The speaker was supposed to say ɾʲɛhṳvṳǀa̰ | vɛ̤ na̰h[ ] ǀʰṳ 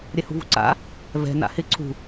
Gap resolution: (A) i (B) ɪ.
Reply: B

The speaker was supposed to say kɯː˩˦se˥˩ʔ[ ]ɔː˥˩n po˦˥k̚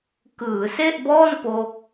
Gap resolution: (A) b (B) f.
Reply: A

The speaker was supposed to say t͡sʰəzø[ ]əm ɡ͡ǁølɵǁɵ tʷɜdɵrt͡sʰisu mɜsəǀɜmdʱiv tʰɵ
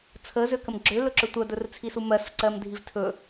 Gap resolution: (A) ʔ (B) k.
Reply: B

